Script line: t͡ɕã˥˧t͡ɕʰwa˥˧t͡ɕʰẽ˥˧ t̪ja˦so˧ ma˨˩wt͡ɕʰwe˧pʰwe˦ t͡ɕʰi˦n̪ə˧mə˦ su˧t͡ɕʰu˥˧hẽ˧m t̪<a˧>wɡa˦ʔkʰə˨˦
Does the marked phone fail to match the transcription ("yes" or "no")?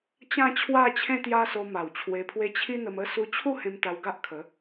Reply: no